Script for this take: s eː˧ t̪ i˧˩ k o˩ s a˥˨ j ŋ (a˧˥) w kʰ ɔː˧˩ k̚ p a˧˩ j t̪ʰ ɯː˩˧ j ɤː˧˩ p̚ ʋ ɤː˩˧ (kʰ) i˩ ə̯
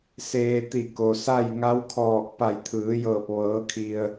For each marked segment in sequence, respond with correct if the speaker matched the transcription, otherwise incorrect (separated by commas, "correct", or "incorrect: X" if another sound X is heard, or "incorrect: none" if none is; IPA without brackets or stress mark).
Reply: correct, correct